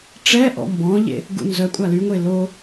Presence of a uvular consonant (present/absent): absent